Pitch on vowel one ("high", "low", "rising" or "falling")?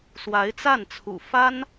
rising